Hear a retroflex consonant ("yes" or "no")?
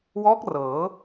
no